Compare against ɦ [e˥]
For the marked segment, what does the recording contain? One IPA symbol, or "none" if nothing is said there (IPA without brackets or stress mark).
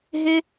e˥